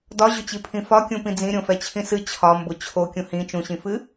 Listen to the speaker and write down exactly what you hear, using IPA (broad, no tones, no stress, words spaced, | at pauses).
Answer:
dɒʑʊt͡ɕipʰĩ fɒkʲũpĩ d͡zĩɾʲõfɛt͡ɕʰĩ sɨ t͡ɕʰɒmbʊ t͡ɕʰokʲũ hĩ t͡ʃũɕĩfɨ